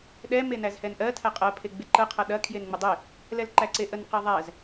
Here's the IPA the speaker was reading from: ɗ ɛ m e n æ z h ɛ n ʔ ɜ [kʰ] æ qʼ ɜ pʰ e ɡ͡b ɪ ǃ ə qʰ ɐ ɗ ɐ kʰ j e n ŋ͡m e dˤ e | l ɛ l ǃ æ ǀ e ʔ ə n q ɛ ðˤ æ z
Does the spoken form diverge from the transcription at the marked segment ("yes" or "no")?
yes